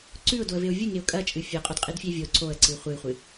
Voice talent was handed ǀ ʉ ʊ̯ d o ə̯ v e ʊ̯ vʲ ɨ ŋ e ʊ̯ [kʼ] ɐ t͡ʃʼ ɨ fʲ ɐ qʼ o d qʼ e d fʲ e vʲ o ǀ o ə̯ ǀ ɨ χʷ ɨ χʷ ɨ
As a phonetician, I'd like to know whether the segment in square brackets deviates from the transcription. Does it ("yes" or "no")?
no